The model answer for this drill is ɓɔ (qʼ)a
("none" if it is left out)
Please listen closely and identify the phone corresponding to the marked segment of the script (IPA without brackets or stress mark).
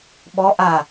ʔ